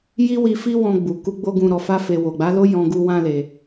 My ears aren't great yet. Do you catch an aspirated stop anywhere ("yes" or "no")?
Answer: no